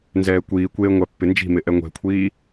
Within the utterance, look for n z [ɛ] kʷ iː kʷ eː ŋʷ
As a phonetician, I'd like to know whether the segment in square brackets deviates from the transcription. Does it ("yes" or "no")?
yes